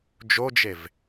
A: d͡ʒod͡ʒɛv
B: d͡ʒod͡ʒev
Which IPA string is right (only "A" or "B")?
B